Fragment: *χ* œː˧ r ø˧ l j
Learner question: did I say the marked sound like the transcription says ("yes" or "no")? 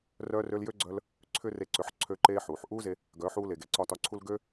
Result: no